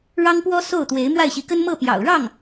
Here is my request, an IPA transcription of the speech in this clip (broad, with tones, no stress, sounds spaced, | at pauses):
ɻ ɑ˥ ŋ p w ɔ˥ s o˥˩ ʊ̯ t̪ w e˧˥ ɪ̯ m w a˥˩ ɪ̯ ɕ i˧˥ k ə˥ n m ɤ˥˩ p j ɑ̰˨˩ ʊ̯ ɻ ɑ˥˩ ŋ